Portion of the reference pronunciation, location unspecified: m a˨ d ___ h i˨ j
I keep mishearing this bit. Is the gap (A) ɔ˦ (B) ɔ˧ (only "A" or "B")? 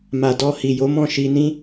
B